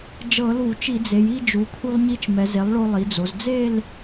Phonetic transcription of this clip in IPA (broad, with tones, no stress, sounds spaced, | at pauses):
d͡ʒ ɤ˧˩˧ l u˧˩˧ t͡ʃ i˧˩˧ d͡z e˩˧ j i˥˧ d͡ʒ u˩˧ kʰ u˧ lˠ ɲ i˧ t͡ʃ m ɛ˩˧ z e˩˥ lˠ ɭ o˧ lˠ i˩˧ d͡z o˩˧ z d͡z e˥˧ l